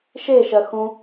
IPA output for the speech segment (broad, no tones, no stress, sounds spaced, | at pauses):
ʃ e ʃ ɜ x ũ